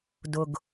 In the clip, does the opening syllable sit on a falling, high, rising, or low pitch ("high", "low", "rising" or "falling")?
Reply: low